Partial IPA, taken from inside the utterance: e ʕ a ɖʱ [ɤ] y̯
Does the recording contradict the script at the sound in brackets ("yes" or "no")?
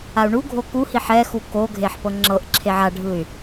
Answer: yes